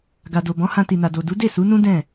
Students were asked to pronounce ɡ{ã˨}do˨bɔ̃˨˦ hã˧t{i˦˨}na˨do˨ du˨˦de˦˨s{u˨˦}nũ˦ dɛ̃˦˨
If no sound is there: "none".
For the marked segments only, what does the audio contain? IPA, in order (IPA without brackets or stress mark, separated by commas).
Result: a˨, i˨, u˨˦